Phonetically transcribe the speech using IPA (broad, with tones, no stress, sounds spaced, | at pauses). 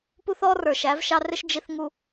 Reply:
p u˦ θ ɔ˦ r ə˞˨ ʃ æ˨˦ v ʃ ɑ˦ r ɪ˦ ʃ d͡ʒ i˨ θ ŋ u˨